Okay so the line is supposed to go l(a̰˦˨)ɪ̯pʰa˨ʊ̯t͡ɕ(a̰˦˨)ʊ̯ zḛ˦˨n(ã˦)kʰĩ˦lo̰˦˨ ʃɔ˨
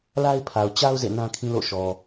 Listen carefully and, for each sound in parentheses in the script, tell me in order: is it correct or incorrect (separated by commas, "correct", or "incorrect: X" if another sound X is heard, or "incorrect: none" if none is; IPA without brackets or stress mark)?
incorrect: a˦, incorrect: a˦, correct